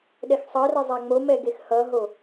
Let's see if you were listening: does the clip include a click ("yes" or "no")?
no